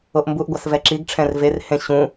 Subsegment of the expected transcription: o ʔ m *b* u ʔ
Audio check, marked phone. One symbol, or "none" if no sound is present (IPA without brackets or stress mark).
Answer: b